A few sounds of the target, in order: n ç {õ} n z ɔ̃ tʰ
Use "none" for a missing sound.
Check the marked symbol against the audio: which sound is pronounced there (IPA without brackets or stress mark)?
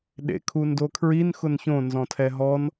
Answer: õ